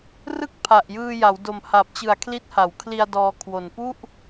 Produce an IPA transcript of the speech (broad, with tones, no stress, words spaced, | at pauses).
rɯ˥˩k̚ pʰa˨˩ʔjɯː˧ja˩˦wdo˨˩m ha˨˩p̚t͡ɕɯ˨˩a̯kʰli˦˥t̚ ha˩˦wkʰli˧a̯ dɔː˧kʰwo˨˩n pu˥˩ʔ